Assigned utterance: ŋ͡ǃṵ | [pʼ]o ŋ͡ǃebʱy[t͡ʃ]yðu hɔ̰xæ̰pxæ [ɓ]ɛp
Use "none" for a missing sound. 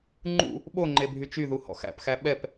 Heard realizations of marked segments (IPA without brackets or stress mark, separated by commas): ɓ, t͡ʃ, ɓ